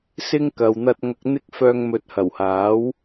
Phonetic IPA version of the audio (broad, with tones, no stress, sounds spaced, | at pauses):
s ɪ˥ ŋ k ɐ˨ w n̪ ɐ˧ t̚ ŋ ɐ˨ k̚ n̪ ɪ˧ k̚ f œː˨ ŋ m ɵ˨ t̚ h ɐ˨˩ w h aː˨˥ w